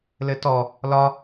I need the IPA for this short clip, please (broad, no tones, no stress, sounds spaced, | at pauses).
l ɘ t ɔ | l ɒ